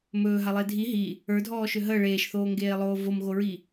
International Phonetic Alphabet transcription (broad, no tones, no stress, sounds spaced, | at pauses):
m ɵː ɦ a lˠ e dʱ i ɦ i | ə˞ dʱ ɔː ʃ ø ɦ ə ɭ eː ʃ θ oː ŋ ɡ eː lˠ oː v o m ɣ o ɹ i